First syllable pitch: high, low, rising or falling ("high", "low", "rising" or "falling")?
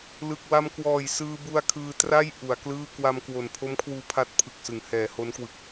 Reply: low